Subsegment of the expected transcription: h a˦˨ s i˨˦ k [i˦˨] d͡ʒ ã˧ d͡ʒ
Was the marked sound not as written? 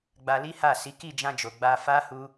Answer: no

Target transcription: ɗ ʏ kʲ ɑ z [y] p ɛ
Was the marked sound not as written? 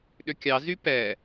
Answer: no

